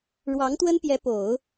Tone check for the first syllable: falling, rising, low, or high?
rising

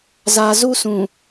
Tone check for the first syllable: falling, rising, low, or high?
low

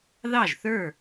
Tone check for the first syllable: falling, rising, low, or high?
falling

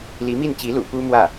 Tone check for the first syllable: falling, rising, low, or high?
rising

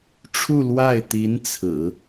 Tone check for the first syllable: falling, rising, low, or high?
falling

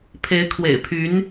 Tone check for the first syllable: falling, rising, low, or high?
rising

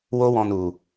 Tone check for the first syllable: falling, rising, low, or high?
high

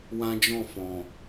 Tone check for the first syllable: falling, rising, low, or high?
high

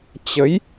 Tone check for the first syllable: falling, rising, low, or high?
rising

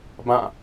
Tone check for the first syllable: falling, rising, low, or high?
falling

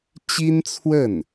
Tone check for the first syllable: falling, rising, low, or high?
high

